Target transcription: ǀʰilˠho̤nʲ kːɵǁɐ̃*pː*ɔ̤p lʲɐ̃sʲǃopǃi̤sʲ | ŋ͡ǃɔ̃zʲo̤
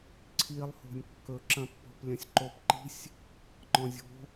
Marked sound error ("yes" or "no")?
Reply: no